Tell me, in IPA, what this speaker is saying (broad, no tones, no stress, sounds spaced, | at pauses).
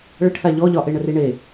ɭ ə ʈ θ a ʎ ɔ ʎ ɒ ʔ e ɳ ə r i ɳ e